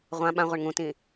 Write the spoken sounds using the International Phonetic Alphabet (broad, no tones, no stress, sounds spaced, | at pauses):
ʁʷ ã ɓ ã ʁʷ ɘ ɳ ŋ ũ t ĩ